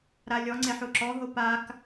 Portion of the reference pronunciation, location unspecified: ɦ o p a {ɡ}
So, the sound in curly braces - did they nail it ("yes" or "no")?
no